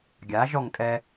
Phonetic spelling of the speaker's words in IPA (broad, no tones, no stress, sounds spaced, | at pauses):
ɡʲ a ʒ ɔ ŋ kʼ ɛ